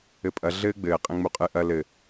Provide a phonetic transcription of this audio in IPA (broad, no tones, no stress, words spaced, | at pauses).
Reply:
ɘpʼɐ ɮɘːɡ͡bɘː qʼẽŋ͡muqʼɨ ʔɐ lɘ